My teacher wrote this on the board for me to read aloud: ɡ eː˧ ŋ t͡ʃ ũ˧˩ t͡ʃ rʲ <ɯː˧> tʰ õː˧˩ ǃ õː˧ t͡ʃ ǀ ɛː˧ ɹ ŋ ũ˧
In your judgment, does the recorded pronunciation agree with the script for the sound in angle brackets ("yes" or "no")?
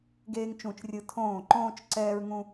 no